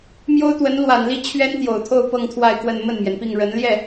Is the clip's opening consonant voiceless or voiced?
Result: voiced